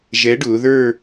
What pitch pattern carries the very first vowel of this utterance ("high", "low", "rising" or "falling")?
rising